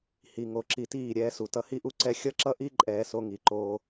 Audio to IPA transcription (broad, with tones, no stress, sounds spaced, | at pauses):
h i˨ ŋ o˨ ǁ i˨ t iː˦˨ ɾʲ ɛː˦ s u˨ t ʌ˦ h i˦ ʔ u˦ ǀ ɛ˦ xʲ ʌ˦ ǁ ʌ˦ ʔ i˦ ǃʼ ɛː˦ s o˦ ŋ i˨ ǃ oː˦